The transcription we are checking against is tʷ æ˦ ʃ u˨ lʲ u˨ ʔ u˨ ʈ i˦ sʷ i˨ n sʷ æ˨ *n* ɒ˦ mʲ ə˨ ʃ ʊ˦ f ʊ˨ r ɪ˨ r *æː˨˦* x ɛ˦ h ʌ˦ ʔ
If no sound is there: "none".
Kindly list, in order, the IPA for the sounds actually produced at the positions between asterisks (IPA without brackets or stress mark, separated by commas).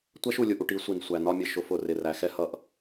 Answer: n, æ˨˦